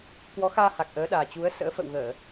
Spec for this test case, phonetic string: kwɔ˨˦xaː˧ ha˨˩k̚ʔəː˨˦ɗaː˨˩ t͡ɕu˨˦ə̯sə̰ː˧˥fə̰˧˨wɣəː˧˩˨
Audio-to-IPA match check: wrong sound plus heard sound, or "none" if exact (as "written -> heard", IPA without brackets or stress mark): none